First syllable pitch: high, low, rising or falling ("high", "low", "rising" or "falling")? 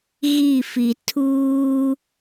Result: falling